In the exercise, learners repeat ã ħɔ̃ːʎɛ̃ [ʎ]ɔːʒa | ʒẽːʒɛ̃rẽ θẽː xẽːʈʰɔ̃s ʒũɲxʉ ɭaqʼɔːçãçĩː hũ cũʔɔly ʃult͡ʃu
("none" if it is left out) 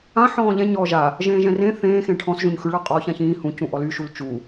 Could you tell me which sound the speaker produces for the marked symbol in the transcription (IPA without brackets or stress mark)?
ɲ